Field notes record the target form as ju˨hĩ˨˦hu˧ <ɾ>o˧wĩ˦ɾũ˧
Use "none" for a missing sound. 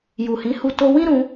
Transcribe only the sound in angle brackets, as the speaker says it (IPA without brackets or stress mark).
t